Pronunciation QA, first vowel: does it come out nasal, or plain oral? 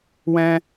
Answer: nasal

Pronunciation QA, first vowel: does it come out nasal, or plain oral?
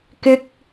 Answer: oral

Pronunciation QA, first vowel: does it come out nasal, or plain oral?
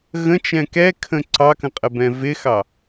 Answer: nasal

